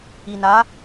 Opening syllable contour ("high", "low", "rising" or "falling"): low